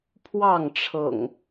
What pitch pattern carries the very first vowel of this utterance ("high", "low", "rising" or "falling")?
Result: falling